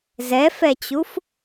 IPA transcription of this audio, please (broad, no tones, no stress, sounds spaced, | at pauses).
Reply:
z ɛ f ɛ t͡ɕ u f